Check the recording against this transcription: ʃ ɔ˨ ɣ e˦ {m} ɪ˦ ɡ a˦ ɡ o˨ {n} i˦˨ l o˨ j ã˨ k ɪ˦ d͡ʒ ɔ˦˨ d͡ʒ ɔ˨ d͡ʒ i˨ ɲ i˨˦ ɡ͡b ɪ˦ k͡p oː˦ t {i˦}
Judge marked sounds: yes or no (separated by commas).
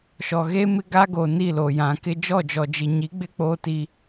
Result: yes, yes, yes